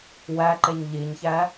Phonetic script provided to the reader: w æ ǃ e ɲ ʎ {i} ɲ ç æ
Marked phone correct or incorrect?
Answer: correct